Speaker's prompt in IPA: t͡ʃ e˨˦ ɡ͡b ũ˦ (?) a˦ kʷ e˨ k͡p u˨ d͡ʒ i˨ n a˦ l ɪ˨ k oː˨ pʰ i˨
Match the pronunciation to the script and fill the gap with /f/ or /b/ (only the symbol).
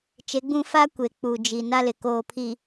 f